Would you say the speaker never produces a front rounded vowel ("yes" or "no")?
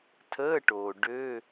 no